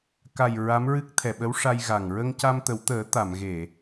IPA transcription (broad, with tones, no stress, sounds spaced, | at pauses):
k a˨˩ j ɹ a˧˥ m ɹ ɨ˦˥ k̚ t̪ʰ ɛ˨˩ ɓ ə˧˥ w ʂ a˧ j ɣ a˨˩ ŋ ɹ ə˧ ŋ c a˧ m t̪ ə˨˩˦ w t̪ əː˨˩˦ t̪ a˨˩˨ m ɣ e˨˩˨